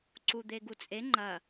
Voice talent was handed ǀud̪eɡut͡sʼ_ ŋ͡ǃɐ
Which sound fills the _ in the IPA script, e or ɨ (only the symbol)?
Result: e